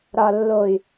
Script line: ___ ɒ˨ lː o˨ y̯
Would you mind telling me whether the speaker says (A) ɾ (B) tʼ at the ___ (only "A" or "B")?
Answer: A